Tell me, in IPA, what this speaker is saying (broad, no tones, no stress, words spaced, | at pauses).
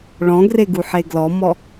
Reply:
ɭɔ̃ɡreɡuħe ɡlɔmɔ